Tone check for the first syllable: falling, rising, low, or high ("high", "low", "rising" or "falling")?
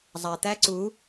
low